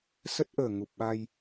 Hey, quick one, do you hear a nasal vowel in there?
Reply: no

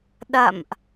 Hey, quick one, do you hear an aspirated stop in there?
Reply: no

